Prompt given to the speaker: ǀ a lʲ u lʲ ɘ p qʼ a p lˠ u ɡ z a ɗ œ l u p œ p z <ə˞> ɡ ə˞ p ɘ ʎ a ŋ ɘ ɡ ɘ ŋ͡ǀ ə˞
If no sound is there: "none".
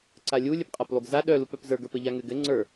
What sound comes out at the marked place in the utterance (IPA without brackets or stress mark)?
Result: ə˞